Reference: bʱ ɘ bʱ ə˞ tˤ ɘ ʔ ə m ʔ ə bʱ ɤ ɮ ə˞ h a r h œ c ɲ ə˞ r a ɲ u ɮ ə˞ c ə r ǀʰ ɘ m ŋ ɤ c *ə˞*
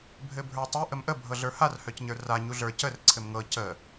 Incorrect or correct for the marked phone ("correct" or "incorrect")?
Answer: incorrect